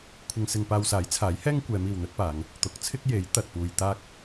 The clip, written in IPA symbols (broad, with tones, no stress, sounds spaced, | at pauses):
kʷʰ ɪ˧ ŋ s ɪ˧ ŋ p aː˧ w s aː˨˥ j t͡sʰ aː˨˥ j h ɛː˥ ŋ kʷ ɛː˨˧ m iː˨ w n̪ ɵ˥ t̚ p aː˨˧ ŋ | t̪ ʊ˨˥ k̚ t͡sʰ ɪ˥ k̚ j e˨˥ j t̪ ɐ˨ t̚ p uː˧ j t̪ aː˥ k̚